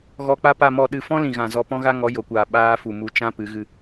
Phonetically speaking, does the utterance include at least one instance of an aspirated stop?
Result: no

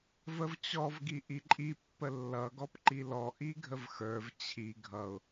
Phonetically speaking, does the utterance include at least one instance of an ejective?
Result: yes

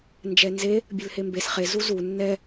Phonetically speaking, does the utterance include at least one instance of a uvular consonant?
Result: yes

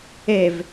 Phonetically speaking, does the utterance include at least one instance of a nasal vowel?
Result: no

